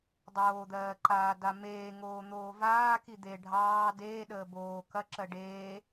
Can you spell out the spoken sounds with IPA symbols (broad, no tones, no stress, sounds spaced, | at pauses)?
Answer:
dˤ oː d̪ ɜː ǃ aː d a m eː ŋ oː n̪ oː v aː k i d̪ e ɖʱ ɑː d eː ɗ əː b oː k ɐ ǁ ɜ ɖ eː